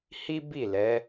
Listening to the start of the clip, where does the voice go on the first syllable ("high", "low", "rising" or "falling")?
high